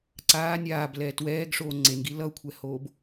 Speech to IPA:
ǀ aː nʲ aː b l ɛː t w ɛː ɡ ʂ oː ŋ͡ǀ e n ɡ i l ʌ u̯ kʷʰ ɛ h oː b

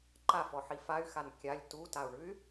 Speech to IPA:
ǃ a f ɔ ħ i f a y̯ x a n kʲ a lʲ t u t a u̯ ɳ ʉ y̯

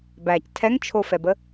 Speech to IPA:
b æ c tʰ ɛ ŋ t͡ʃʰ o f ɛ b ə

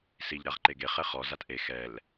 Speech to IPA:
s i ʎ ɾ a ʁ ǃ e ɡ e χ ɛ χ ɔ z a t ʔ e x ɛ l

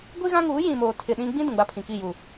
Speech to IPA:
ɡʷ i˦ ɣ ã˦ ŋ uː˨˦ j ĩ˨ m oː˨ tʰ ɪ˨ ɗ ĩ˦ ɡ͡b ĩ˦ d ũ˨ ɡ͡b a˦ pʰ ĩ˨ k i˦˨ j u˨

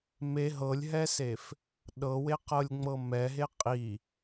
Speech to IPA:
m e ɦ ɤ lʲ ɦ ɛ s e f | ɗ ɤ w e q ɤ lʲ ŋ͡m ɤ m ɛ ɦ e qʼ i

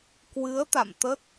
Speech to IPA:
k w ɨ˨˦ ə̯ t̪ a̰˧˨ m t̪ ə˦˥ t̚

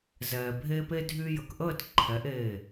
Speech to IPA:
z ɛː˨ bʱ e˦ p e˦ dʱ y˦ j ə˨ k ʔ əː˦˨ t ǃʰ ɛ˨˦ ʔ eː˦˨

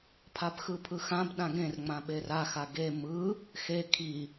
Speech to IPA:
pʰ a b x ɯ pʰ ɯ x ã b ɗ ã ɡ ẽ r ŋ͡m ã ɓ e r a x a ɡ e m ɯ | x e kʰ i

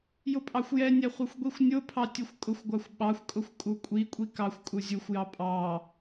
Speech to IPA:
j ʊ pʼ ɑ xʷ j ɛ nʲ ɛ χʷ ɛ xʷ ɡʷ i xʷ nʲ ʊ pʰ ɑ tʲ u xʷ kʼ ʊ xʷ ɡʷ ɑ xʷ ɓ ɑ xʷ kʼ ʊ xʷ kʼ u kʷʼ i kʷʼ i k ɑ xʷ kʼ u zʲ u xʷ j ɑ pʼ ɑ

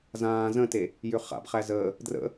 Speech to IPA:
z ãː z ə̃ t e | j ʏ χ a̰ b χ æ z əː | d r ə̰

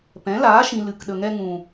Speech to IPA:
p ɛ̃˨˦ l aː˨˦ ʃ ĩ˨ l ɨ˨ k ɗ ə˨ ŋ ɛ˧ ŋ ũ˨

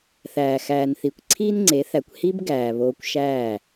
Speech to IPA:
θ æː˨ x æː˨ n θ i˨ kʷ ǀʰ iː˦ n ŋ͡ǀ e˨˦ θ æ˨ kʷ h i˦ b ɡ æː˨ β oː˧ kʷ ʃ æː˦˨

